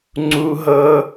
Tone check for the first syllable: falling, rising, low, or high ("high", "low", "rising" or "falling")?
high